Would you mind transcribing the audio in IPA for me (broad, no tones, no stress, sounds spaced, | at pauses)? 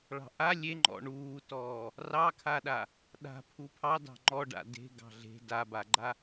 ɭ ɑ̤ ʔ a lʲ e ŋ͡ǃ ɔ̰ ɳ uː t ɔː | r ɑ kʰ a ɗ a | ɗ a̤ pʰ u pʰ ɑ d ɑ̤ ŋ͡ǃ ɔ ɖ a̰ d e̤ ɡ ɑ̤ ɮ e̤ d a b a ɡ͡ǃ a